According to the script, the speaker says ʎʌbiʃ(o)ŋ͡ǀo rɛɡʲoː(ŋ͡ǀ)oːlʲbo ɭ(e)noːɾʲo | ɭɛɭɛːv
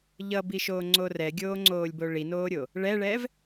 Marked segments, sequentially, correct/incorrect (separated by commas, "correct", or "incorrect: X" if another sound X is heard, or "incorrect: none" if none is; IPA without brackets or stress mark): incorrect: oː, correct, incorrect: i